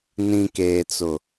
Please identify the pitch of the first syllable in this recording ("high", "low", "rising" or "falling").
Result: low